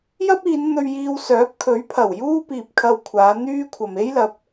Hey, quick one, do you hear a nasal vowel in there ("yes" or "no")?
no